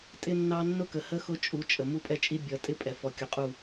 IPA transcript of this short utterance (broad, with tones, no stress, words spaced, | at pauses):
tʼɪ˦nːɑ˦ nːʊ˦kə˨hə˦ xʊ˦t͡ʃʼu˨˦t͡ʃʼə˨ mu˦pʼɛ˦t͡ʃʼi˦ bʲʌ˨˦ tʼɪ˦pʼɛ˨ fɔ˨kʲʊ˨qʼu˦˨